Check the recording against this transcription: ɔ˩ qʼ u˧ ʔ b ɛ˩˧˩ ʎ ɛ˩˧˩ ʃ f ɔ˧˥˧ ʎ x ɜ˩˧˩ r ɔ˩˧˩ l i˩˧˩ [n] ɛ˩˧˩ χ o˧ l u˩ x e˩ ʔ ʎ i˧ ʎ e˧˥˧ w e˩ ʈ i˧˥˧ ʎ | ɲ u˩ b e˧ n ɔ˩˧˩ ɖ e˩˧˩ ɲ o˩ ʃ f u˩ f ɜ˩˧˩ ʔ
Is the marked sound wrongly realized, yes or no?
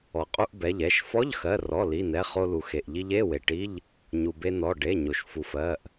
no